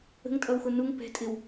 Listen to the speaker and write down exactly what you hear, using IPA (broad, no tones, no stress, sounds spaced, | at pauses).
ə̤ ŋ tʼ ʌ w x ʊ n u ŋ p ɛ̤ tʼ ɪ w